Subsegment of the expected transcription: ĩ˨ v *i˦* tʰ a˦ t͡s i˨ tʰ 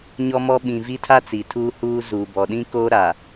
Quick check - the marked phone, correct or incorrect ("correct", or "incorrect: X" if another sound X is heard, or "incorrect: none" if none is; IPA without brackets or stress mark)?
correct